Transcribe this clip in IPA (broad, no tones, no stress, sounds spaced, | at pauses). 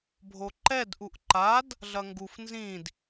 bʱ o ǃ ɛ d ʔ u ʔ ǃ a d | ɮ ɐ ŋ ɡ u f n z ĩ d